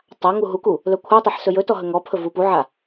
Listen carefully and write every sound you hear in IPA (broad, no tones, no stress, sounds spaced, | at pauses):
tˤ a ŋ u ɦ u k u | l ɵ kʷʰ a tˤ e ħ s ɵ j ɵ t ɔ ɦ ɵ ŋ ɔ pʰ ɵ v u p u ʕ a